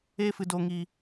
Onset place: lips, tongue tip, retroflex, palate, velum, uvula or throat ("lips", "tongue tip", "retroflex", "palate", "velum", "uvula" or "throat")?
lips